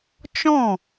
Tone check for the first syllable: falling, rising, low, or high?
falling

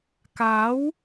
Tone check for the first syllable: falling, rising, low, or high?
rising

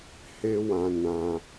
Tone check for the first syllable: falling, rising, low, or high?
high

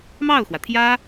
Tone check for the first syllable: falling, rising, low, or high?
falling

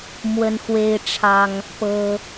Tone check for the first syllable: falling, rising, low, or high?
high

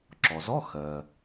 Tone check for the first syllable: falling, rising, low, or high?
low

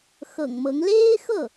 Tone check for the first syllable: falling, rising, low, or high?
low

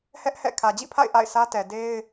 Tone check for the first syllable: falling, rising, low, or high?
high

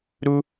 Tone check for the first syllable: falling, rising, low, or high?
high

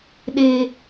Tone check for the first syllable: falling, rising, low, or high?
high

